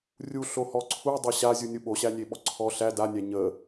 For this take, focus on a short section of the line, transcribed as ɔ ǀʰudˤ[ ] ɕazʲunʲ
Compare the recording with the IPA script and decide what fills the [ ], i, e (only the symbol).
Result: e